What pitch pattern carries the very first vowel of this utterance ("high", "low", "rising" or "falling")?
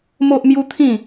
high